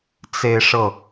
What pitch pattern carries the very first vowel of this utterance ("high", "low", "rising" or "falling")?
falling